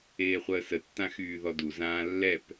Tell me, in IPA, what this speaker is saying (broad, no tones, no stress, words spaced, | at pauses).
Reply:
eːχʷəːsətːã xyːðɔdu zãːlːɛp